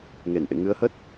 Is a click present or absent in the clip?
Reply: absent